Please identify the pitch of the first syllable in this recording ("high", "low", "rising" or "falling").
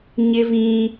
high